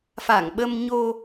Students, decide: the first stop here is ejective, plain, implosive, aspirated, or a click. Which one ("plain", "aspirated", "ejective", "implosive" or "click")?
implosive